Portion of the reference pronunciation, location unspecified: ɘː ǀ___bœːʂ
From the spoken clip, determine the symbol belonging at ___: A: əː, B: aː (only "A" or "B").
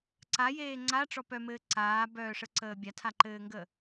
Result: B